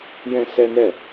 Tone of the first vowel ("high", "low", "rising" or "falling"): high